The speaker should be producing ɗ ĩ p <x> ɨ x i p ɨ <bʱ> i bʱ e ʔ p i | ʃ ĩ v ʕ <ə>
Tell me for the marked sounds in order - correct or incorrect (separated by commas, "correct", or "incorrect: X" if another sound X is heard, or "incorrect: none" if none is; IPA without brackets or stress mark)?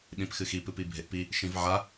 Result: correct, incorrect: p, incorrect: a